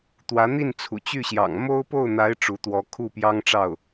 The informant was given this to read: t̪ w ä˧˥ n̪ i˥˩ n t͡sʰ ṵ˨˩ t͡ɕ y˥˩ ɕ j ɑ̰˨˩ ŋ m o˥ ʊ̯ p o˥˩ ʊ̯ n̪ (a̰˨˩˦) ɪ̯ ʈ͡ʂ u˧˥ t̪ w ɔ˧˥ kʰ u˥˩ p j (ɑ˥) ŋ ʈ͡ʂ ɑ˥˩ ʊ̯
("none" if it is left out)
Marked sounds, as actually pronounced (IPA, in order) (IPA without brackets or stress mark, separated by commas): a˧˥, ɑ˥